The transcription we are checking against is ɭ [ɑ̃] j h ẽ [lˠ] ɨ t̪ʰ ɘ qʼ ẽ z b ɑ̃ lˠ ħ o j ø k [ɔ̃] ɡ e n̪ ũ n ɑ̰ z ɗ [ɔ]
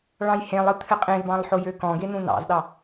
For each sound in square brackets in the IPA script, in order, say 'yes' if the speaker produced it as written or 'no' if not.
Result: yes, yes, yes, no

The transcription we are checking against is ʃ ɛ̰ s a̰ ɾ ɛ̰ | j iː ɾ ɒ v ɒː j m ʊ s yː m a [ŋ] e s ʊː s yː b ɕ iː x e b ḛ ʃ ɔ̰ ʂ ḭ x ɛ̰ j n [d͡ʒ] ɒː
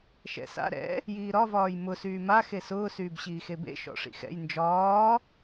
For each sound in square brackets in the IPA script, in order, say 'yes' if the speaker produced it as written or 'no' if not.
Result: no, yes

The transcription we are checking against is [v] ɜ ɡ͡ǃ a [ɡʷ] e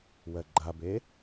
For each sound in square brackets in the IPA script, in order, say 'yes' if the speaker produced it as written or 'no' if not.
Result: no, no

